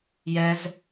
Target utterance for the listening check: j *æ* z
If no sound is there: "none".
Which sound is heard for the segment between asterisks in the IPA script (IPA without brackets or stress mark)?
ɛ